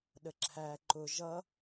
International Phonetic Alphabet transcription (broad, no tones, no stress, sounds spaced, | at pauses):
ɗ ə ǁʰ æ ǃ ʊ ʒ ʌ